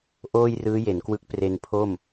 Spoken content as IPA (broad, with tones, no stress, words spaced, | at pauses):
ʔoː˥˩jrɯː˦˥je˩˦n kwɯ˦˥k̚pre˧npʰo˥˩m